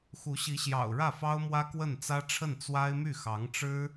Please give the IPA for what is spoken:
x u˧˥ ɕ i˧˥ ɕ j ɑ̰˨˩ ʊ̯ ɻ ä˥˩ f ɑ˥ ʊ̯ m w ä˥ k w ə˥˩ n t͡s ä˥ ʈ͡ʂʰ ə˥˩ n t͡s w a˥ ɪ̯ m y˥˩ x ɑ˧˥ ŋ ʈ͡ʂ ɻ̩˥

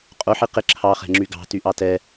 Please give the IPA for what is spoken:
qʼ o ħ i q ɪ ǁʰ ɑ χ ɛ̤ ŋ͡ǁ y ɡ ɑ̤ t y ʔ ɑ t ɛ

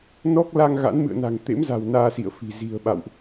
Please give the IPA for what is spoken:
n ɔ˦˥ k̚ l a˧ ŋ ɣ a̰˧˥ n m ɨ̰˧˨ ə̯ n a̤˨˩ ŋ t̪ ḛ˧˥ m z a̤˨˩ w n aː˧ s ḭ˧˨ ə̯ f i̤˨˩ z i̤˨˩ ə̯ ɓ a̰˧˨ w ʔ

